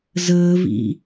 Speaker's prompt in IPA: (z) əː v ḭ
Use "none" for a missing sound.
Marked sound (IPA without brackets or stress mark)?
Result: z